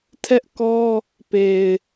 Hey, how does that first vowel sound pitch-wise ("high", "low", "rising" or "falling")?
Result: high